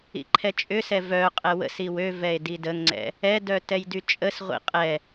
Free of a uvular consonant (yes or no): no